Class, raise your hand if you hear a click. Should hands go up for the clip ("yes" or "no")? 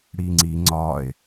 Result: yes